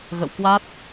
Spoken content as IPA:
ɣ ə̰˧˨ w k w a˦˥ t̚

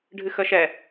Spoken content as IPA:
ɖʱ ɨ x ə ʃ ɛ

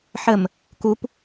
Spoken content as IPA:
ħ ə m | k u p

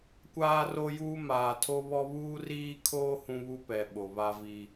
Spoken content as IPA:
kʷ aː˦ r o˦ j uː˦ m aː˨ tʰ o˦ β ɔ˦ β uː˦ r iː˦ kʰ oː˦ h ũ˦ β u˦ p ɛ˨ ɓ o˨ β a˦ v i˦

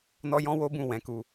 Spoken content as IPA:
n ɔ˦ j ɔ̃˦ w o˦ b ũ˦˨ w ɛ̃˨˦ k u˧

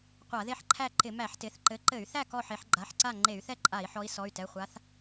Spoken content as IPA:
qʷ a˧˩˧ ð e˥˨ ħ ǃʰ æ˥˨ ǃ ɪ˧˩˧ m æ˧˩˧ ħ t ɪ˩˧˩ θ ǃ ɘ˨˦ ǃ ɘ˧˩˧ y̯ θ æ˥˨ k ɔ˥˨ ħ e˨˦ ħ ɡ͡ǃ a˩˧˩ ħ ǀ a˥˨ ŋ͡ǃ e˧˩˧ y̯ θ ɛ˥˨ ǃʼ a˧˩˧ i̯ ħ ɔ˨˦ i̯ s ɔ˩˧˩ y̯ t ɛ˩˧˩ χʷ a˨˦ θ

